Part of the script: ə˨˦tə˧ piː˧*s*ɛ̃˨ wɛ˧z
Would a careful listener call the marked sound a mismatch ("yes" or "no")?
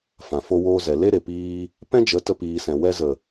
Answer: no